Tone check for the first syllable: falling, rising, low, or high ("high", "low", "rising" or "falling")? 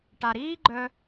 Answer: low